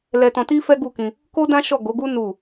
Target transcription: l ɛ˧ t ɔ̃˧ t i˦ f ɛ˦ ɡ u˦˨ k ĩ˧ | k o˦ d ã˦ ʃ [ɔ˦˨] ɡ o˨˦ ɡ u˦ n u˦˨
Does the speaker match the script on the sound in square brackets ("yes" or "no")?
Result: yes